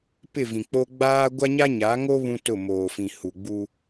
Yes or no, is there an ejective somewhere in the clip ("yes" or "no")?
no